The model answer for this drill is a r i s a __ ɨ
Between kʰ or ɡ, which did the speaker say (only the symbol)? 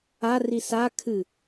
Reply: kʰ